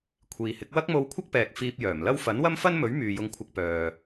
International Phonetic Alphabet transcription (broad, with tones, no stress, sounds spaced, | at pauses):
kʷʰ iː˨ h ɪ˨˥ k̚ w ɐ˥ k̚ m o˧ w kʷʰ ɐ˥ k̚ p ɛː˨ k̚ f iː˧ p̚ j œː˨˩ m l ɐ˥ w f ɐ˨˥ n w ɐ˥ m f ɐ˥ n m ɵ˨˥ ɥ m yː˨ j ʊ˧ ŋ kʷʰ ɐ˧ k̚ p œː˨